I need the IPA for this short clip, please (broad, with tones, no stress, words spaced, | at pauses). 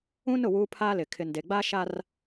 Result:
ũ˦nʊ˦˨ wuː˦pʰaː˦lɪ˨ kʰɪ˨nde˨ɡ͡ba˦ ʃa˦r